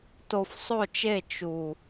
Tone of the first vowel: low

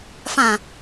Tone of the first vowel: low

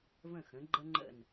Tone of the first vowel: falling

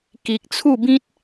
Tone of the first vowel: low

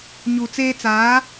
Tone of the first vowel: low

